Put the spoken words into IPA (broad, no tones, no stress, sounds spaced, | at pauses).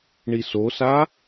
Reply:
ɳ i s o s a